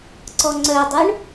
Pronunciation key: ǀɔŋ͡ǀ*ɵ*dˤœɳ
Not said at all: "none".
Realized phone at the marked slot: œ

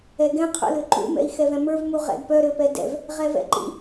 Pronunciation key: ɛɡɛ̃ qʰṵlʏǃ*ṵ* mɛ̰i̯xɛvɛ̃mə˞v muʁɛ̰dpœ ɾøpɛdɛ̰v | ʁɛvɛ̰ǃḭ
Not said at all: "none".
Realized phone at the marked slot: ṵ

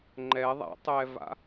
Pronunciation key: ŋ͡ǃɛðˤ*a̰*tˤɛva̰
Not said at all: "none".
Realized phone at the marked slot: a̰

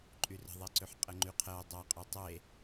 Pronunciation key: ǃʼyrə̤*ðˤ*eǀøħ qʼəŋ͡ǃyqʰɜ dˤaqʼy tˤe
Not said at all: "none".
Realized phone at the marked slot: ðˤ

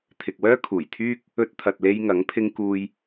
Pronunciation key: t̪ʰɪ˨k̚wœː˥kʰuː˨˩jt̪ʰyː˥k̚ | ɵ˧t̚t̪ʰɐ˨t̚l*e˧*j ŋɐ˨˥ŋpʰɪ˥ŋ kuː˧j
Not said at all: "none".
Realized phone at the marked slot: e˧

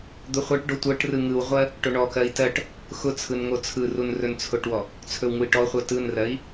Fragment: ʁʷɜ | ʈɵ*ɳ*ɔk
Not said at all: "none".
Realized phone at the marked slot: ɳ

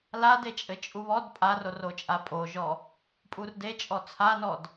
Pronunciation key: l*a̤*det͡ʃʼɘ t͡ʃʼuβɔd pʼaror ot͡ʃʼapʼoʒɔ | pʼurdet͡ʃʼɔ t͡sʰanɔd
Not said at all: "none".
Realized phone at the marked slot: a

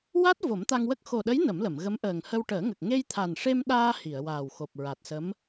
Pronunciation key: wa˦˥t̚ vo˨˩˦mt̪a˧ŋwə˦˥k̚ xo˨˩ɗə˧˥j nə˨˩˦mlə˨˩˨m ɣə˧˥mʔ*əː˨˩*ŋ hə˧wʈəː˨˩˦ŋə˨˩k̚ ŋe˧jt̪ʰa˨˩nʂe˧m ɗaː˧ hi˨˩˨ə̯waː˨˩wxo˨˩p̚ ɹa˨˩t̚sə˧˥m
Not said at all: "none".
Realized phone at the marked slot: əː˨˩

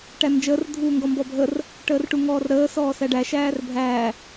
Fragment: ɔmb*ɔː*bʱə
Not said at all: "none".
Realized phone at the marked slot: ɔ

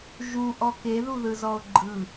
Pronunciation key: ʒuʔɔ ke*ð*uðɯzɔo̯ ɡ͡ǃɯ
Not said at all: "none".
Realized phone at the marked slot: ð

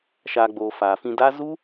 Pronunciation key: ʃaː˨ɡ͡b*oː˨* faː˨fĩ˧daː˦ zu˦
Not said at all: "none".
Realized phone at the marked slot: oː˨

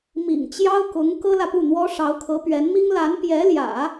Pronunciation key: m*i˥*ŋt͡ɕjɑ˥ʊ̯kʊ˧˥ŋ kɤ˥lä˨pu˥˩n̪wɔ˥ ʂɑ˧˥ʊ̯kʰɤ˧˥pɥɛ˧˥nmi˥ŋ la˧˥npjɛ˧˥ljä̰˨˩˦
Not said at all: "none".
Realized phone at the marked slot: ḭ˨˩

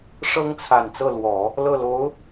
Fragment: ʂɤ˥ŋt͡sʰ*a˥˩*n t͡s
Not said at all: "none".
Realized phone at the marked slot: a˨˩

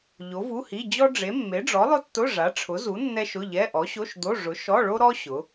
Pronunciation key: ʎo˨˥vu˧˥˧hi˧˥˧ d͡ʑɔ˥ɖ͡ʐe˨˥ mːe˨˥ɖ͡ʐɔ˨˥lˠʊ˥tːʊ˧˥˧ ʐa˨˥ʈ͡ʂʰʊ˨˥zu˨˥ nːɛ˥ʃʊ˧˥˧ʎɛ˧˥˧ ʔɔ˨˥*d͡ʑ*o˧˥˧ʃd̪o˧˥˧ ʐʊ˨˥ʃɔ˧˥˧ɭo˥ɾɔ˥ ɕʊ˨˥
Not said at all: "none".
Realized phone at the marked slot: ɕ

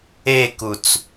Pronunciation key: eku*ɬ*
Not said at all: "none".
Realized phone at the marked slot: t͡s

